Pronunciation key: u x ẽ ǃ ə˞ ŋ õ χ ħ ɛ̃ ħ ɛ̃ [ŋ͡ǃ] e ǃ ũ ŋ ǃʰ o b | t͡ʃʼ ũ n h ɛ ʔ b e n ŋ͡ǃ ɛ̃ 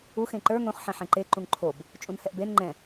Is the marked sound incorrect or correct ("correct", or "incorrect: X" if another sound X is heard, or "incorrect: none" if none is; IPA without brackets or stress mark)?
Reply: incorrect: ǃ